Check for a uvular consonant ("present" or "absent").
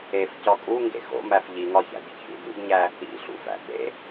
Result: absent